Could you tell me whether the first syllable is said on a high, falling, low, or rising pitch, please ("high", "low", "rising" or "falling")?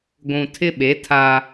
low